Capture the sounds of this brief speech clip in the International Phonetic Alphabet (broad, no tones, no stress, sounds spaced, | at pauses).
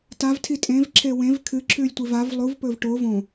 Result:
t a v tʰ i tʼ ẽ v ǁʰ e w ẽ v kʰ ɨ ǁʰ ʉ lʲ tʷ i v a v lˠ u v p ɵ v ʈ o v õ